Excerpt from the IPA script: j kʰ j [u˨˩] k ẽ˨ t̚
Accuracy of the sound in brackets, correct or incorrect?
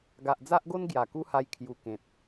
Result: incorrect